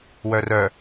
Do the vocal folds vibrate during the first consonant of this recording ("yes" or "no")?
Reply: yes